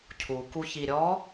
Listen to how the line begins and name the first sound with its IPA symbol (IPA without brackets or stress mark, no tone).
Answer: cʰ